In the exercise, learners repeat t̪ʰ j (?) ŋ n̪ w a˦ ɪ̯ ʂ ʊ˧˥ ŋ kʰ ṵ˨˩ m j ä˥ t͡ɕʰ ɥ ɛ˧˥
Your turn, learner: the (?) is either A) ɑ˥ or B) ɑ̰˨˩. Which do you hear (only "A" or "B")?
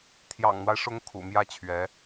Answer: B